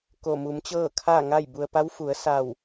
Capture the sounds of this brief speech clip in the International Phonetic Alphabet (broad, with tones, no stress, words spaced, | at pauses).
ko˧˩ mu˩˧mt͡ɕɤː˥˨kʰaː˥˨ ŋa˥˨jbu˧ə̯ pa˧˥wfu˩˧ə̯ sa˧˩w